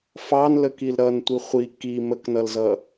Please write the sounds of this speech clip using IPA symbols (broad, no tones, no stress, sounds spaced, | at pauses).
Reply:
f ɑ n l ə k i l ɾ ʌ n tʷ i χʷ i k i m ə k n ʌ l z ʌ